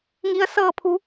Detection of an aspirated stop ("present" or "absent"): present